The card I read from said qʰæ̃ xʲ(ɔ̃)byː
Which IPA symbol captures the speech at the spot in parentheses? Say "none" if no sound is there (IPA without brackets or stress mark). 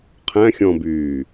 ɔ̃